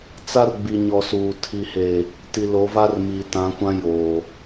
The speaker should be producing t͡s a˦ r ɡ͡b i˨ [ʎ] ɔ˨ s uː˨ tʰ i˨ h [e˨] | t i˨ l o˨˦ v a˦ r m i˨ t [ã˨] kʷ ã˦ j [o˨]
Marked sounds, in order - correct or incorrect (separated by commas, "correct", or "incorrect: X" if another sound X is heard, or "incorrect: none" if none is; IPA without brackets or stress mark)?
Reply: incorrect: ɲ, correct, incorrect: ã˨˦, correct